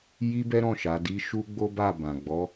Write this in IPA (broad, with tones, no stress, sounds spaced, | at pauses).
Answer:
j i˦ b ɛ˦ ɾ ɔ̃˦˨ ʃ a˨˦ d i˦ ʃ u˦ ɡ͡b o˦ b a˦˨ b ã˨ ɡ͡b ɔ˨˦